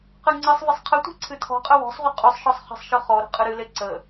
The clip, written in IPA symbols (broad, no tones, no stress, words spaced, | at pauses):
qɨŋ͡ǀɨsˤvɪsˤ qʰɪtʷe̤ ǀʰɨtʰɔ̤qʼə wɔ̤sˤʁʷə qʼysˤʃɔsˤ χə̤sˤʃɯ χɔ ɾə̤qʼɨɾɨle ǀə